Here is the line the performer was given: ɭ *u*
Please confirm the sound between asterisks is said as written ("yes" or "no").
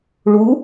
yes